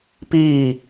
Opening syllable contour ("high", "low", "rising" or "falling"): falling